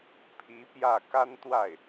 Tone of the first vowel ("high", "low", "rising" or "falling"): rising